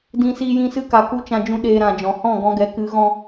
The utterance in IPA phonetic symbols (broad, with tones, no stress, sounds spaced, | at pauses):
d ĩ˧ s iː˧ j ĩ˧ s ɨ˧ k a˨ k u˧ t͡ʃ ã˦ d͡ʒ ũ˦ ɗ eː˧ ɾ ã˨ d͡ʒ ɔ̃˨ h ɔ̃˦˨ ɡ ɔ̃˧ ɡ ɛ˨˦ k ɨ˨˦ ɣ ɔ̃˦